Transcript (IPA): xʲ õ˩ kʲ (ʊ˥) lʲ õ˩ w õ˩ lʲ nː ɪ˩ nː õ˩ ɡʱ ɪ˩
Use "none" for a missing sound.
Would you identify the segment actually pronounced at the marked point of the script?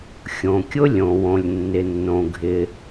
ʊ˥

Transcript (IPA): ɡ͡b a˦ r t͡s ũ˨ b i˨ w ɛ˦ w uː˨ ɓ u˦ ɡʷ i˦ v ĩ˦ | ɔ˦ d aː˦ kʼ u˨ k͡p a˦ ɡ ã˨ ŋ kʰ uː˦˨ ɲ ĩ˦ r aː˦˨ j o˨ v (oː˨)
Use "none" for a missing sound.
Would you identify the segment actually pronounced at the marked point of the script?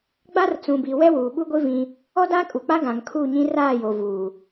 uː˨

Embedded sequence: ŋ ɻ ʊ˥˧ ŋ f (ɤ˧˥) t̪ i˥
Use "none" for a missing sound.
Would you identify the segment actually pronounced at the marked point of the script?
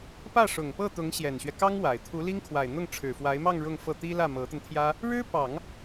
ɤ˥˩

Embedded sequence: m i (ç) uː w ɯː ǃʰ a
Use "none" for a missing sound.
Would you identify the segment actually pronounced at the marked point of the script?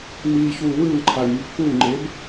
ç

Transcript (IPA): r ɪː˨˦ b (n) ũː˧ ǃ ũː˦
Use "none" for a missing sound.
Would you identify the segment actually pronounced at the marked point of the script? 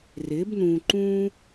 n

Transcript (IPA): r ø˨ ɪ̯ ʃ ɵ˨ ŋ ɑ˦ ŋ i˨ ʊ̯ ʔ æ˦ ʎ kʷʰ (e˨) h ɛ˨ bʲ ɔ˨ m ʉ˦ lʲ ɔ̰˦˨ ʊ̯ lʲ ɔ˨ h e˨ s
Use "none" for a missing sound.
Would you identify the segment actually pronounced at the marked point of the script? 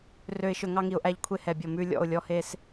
e˦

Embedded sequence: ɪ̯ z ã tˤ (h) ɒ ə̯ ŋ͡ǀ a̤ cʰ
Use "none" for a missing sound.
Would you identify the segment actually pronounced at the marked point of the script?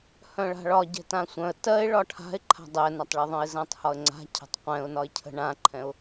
h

